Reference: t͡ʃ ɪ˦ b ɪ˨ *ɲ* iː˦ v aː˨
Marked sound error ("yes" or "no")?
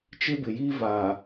yes